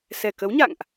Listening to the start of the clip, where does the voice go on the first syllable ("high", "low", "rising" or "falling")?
low